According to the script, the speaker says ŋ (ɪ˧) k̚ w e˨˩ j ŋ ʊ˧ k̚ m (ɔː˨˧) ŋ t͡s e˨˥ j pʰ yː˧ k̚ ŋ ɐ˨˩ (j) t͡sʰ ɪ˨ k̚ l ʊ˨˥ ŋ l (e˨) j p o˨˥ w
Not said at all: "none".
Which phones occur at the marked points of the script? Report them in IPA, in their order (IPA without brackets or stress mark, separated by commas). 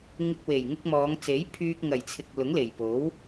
ɪ˧, ɔː˨˧, j, e˨˩